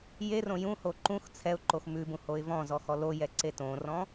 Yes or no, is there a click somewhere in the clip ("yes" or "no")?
yes